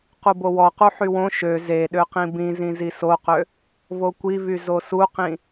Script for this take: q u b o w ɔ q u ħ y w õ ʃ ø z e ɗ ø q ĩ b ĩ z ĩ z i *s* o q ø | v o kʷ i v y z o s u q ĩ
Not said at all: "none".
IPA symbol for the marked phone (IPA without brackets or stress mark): s